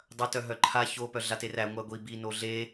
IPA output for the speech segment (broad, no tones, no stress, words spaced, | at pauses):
dˤɐ tœɦœǃʰa ço pœɮateræ ŋʷæɡʷi bi noɮe